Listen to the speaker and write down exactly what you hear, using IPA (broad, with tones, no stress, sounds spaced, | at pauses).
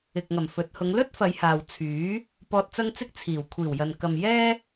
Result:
ɪ˨ k̚ ŋ ɐ˨˩ m f ɵ˨ t̚ h ʊ˨˧ ŋ l ɵ˥ t̚ f ɐ˨˧ j h aː˨ w t͡sʰ yː˨˥ | p ɔː˨ t̚ t͡s ɐ˧ ŋ t͡s ɪ˧ k̚ t͡sʰ iː˨˩ w kʷʰ iː˨˩ w j ɐ˨ n k ɐ˨ m j ɛː˥